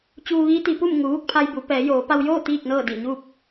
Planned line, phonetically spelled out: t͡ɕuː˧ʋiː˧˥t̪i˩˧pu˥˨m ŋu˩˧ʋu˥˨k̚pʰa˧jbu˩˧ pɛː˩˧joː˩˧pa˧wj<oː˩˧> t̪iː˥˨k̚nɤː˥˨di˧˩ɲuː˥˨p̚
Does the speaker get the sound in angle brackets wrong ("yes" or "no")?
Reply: yes